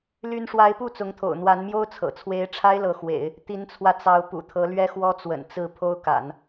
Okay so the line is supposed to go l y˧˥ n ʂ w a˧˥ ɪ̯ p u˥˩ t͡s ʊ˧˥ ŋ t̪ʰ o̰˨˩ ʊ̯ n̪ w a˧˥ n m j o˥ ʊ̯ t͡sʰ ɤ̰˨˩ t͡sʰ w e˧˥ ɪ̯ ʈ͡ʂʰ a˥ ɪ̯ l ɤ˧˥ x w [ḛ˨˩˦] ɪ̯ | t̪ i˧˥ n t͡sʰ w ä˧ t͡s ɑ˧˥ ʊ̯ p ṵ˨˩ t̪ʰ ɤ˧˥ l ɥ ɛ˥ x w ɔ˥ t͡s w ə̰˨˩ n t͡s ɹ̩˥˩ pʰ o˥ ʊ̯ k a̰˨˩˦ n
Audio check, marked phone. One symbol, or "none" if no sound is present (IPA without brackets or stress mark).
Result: ḛ˨˩˦